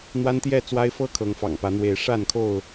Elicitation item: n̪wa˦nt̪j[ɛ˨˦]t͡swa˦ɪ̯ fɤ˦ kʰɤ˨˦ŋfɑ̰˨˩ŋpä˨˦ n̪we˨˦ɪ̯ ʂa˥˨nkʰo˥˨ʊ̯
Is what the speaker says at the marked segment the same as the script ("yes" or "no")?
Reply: no